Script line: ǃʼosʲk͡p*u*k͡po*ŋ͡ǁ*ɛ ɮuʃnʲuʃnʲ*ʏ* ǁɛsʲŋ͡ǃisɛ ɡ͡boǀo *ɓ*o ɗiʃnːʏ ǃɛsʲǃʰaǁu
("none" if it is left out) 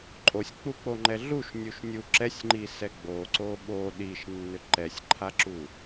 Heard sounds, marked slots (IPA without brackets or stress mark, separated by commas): u, ŋ͡ǃ, u, ɓ